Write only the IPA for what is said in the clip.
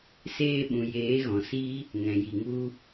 seː˧ɓũ˨jeː˨˦ɣɔ̃˨ si˦ | ŋɛ̃˨ji˨ŋu˦

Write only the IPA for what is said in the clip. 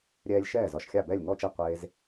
ɾʲɛː˧lʲ ʃɛː˥˩zɒ˧ʃxʲa˥˩ bɛ˥˩lʲŋɔ˥˩t͡ʃe˥˩ qʷe˧z

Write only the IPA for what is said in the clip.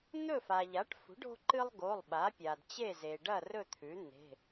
n̪ɵ˥˨fa˩ʎa˩˥ʈfṳ˩˥ɖ o̤˦ǃɨ˦lˠ ɡo˩˧˩lˠɓa˩˥pʲa˩d t͡ɕe˥˨ze˩ɖɐ˥˨ rɵ˥˨t̪ʰʉ˩˥ n̪e̤˩˧˩

